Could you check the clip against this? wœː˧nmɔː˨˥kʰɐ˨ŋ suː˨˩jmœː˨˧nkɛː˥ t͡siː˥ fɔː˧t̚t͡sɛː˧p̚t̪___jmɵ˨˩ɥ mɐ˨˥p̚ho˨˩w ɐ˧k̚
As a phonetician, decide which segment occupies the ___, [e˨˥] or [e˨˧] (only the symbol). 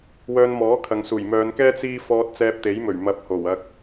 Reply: e˨˥